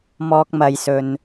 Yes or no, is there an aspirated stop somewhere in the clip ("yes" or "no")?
no